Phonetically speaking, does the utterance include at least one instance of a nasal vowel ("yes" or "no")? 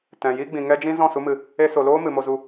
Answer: yes